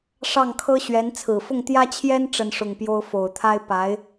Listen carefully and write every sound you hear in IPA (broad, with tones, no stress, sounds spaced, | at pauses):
ʂ ɑ˥˩ ŋ kʰ ɤ˥ ɕ ɥ ɛ˧˥ n t͡sʰ ɹ̩˨˩ f ʊ˥˩ ŋ t̪ j ä˥ t͡ɕʰ j ɛ˥ n ʈ͡ʂ ə˥˧ n ʂ ʊ˥˩ ŋ p j o˥ ʊ̯ f o˨˩ ʊ̯ t̪ʰ a˥ ɪ̯ p a˧˥ ɪ̯